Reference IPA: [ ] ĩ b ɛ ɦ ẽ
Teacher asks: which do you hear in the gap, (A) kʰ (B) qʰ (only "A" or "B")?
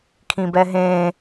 A